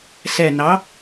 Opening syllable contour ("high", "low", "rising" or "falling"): low